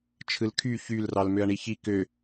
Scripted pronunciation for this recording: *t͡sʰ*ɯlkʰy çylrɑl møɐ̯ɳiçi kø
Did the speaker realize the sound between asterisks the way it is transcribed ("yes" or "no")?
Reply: no